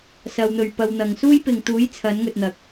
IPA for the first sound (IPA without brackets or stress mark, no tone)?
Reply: s